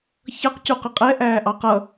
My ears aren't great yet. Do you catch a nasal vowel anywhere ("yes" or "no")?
no